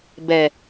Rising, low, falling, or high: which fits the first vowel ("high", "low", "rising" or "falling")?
low